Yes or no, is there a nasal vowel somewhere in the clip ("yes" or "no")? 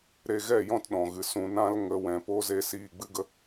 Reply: yes